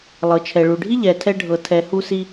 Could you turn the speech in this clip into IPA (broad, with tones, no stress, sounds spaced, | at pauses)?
lˠ ɤ˩ t͡ʃʰ ɛ˩ ɭ u˩ ɖʱ i˥ ʎ ɛ˩ tʰ ɛ˧ ɖʱ ɤ˩ tʰ ɛ˩ h u˧ s i˧